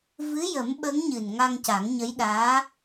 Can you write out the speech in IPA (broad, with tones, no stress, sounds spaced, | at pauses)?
v ɨ˧˥ j ə˨˩˦ m ɓ ə˧˥ ŋ ɲ ɨ˨˩ n ŋ a˧ ŋ c a˨˩˦ ŋ ɲ ə˧˥ j ɗ aː˧˥